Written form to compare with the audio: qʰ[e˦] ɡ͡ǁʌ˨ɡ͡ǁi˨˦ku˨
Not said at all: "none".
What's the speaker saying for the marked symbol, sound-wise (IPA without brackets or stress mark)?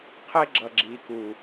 e˦